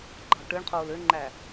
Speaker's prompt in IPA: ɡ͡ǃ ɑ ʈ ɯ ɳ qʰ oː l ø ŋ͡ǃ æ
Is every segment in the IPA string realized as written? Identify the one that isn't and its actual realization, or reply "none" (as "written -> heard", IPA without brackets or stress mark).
none